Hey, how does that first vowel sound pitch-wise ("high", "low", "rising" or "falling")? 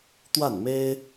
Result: falling